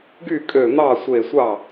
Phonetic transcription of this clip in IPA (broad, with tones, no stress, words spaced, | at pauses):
ɡy˥˩kʼø˧˩ n̪ɑ˥˩sʷe˧˩sʷɑ˥˩